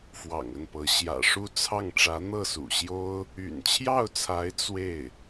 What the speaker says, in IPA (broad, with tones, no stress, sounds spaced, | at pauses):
f w ɑ̰˨˩ ŋ ə˥˩ n p ɤ˧˥ ɕ j ä̰˨˩ ʂ u˥˧ t͡sʰ ɑ˥˩ ŋ ʈ͡ʂ ä˧˥ n̪ ɤ˥˩ s ṵ˨˩ ɕ j o˥ ʊ̯ | y̰˨˩ n t͡ɕʰ j ɑ˥˩ ʊ̯ t͡sʰ a˧˥ ɪ̯ t͡s w e˥˩ ɪ̯